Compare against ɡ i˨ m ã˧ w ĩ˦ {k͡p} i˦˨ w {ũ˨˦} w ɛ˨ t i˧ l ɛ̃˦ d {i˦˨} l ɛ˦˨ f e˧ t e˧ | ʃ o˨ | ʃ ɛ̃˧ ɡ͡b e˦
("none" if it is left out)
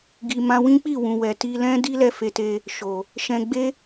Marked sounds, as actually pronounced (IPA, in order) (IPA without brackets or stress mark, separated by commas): k͡p, ũ˨, i˦